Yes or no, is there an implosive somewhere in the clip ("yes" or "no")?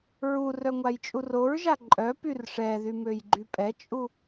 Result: no